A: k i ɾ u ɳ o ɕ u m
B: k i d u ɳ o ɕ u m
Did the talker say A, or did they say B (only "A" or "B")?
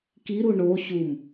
A